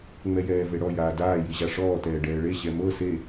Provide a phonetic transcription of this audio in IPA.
ŋ͡m ɛ j ɛː v e ɽ ɔ j aː d aː j i ʑ a ʂ ɔː t ɛː ɖ ɛː ɭ e ɕ ɛ m ɤ s e

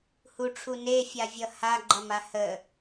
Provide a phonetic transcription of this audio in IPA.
h u ʈ͡ʂʰ u n e fʲ a vʲ ʌ h a ɡ͡ǃ ʌ m a h ə

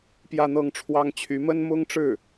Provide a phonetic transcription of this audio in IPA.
p j ä˥˧ n̪ ɤ˥˩ ŋ ʈ͡ʂʰ w ɑ˥ ŋ t͡ɕʰ y˧˥ m ə˥ n m ʊ˥ ŋ ʈ͡ʂ ɻ̩˥˩

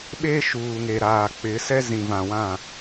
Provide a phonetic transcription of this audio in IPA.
ɓ e˦ ʃ uː˨ ŋ e˨ ɾ aː˨ k͡p ɪ˨˦ s ɛ˦ z ĩ˨ v ã˨ w ã˦˨

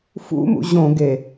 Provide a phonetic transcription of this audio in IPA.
f ṵ m ṵ ʑ õ ɡ e

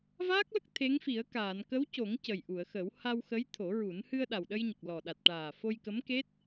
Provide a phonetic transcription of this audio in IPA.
v aː˦˥ k̚ l ə˦˥ k̚ t̪ʰ e˧˥ ŋ f i˨˩˦ ə̯ k aː˨˩˨ n k ə˧˥ w c o˨˩˦ ŋ c ə˨˩ j ʔ u˨˩˨ ə̯ x ə˨˩˦ w h a˧ w x ə˧˥ j t̪ʰ o˨˩˦ ɹ u˨˩˦ n h ɨ˧ ə̯ ɗ a˨˩ w ɗ ə˧ j ɲ ə˨˩ k̚ l ɔ˨˩ ɗ a˨˩ t̚ ʈ aː˨˩ f o˧ j k ə˧˥ m k e˦˥ t̚

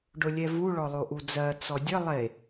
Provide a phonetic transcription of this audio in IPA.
ɖ ʊ lʲ ɛ v u ɭ ɔ lˠ o ʔ u d͡z ɜ t͡s ɔ dʲ ə lˠ e

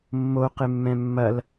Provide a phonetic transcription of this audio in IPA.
mː o q ɪ mː ɛ̃ mː ɐ l

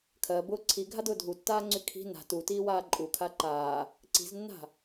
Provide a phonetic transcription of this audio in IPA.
kʰ ɜ b ʊː ǀʰ i ɡʱ a d ʊː dʱ u tː aː ŋ͡ǀ y kʰ i̤ n a̤ t u t iː w aː ǃʼ u kʰ a ǃ aː | ǀ i̤ z nː a̤

